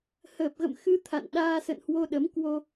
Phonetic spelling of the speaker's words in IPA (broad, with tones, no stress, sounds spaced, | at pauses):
h əː˨˩ p̚ ɣ ə̰˧˨ m x ɨ˧ t̪ʰ a̰˧˨ n ɗ aː˧ s ə̰˧˨ n h w o˧ ɗ ə˨˦ m k w o˧